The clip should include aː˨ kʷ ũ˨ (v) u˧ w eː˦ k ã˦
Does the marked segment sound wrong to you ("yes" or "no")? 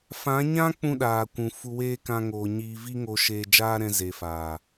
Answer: yes